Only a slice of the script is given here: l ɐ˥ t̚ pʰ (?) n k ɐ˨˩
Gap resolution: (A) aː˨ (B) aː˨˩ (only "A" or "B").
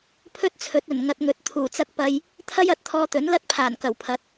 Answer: B